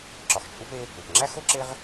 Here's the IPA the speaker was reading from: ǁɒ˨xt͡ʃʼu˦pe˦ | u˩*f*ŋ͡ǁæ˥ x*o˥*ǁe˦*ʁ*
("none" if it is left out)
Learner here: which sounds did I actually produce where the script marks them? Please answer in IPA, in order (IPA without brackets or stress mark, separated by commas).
p, o˥, ʁ